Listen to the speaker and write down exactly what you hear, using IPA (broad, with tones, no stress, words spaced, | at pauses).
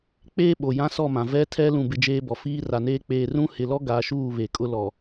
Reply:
k͡peː˦ɓo˨ jã˦sɔ˦˨mã˨ vɛ˦ tʰɛ˦ lũ˦˨bɪ˦d͡ʒeː˦bɔ˨ fiː˦ra˨neː˦ k͡peː˨rũ˦hɪ˨lɔ˦ ɡa˨˦ʃuː˦˨ βe˨kʼʊ˦ lɔ˨